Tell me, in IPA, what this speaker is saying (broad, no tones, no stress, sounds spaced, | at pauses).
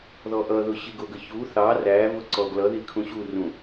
ð ɔ ʔ ʌ ð ʊ ɕ i ɡ ʊ ɡ ə ç u θ ɑ r æ v ʊ ǀ ɔ ɡ l ʌ ð i kʰ ũ ɕ u r ũ